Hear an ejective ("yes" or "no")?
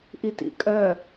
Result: yes